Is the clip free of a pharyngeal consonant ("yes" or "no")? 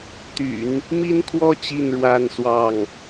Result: yes